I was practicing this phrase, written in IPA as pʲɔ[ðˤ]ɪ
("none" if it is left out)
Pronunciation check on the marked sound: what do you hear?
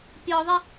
ðˤ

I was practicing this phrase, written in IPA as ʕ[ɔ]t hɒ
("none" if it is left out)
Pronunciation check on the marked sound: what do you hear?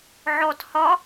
ɔ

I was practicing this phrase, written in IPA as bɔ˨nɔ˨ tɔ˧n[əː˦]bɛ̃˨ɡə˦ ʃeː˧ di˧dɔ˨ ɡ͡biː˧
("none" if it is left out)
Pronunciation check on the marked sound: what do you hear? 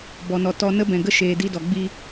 ə˦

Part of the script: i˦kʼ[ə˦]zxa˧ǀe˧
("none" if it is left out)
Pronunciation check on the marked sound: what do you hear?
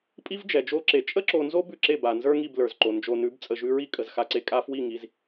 ə˨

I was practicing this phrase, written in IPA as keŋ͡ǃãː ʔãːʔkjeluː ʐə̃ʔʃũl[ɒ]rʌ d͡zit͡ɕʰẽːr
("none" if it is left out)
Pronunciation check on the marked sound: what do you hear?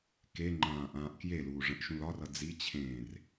ɒ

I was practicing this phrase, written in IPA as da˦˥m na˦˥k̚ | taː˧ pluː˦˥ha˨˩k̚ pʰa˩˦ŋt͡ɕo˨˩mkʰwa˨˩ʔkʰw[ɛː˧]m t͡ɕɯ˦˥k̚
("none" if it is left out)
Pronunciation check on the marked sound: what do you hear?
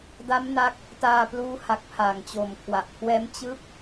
ɛː˦˥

